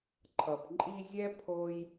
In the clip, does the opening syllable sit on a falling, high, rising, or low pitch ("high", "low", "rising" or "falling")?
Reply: low